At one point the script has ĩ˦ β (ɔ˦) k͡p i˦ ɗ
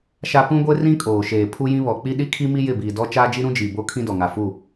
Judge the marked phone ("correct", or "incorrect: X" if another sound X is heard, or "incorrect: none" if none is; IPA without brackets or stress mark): incorrect: ɔ˨